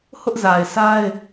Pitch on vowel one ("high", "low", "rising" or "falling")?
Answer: high